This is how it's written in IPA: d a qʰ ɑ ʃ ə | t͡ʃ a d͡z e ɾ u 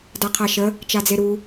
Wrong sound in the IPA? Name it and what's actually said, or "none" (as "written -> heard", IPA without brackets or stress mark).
ɑ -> a